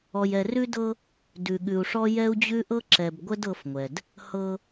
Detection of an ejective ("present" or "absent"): absent